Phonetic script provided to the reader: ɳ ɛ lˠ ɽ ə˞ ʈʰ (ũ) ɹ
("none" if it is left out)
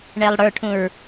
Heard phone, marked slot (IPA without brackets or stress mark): ũ